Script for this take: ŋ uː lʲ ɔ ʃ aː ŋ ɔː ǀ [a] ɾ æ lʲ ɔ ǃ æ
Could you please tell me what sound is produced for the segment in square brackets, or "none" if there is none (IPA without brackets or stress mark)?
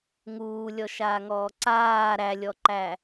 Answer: aː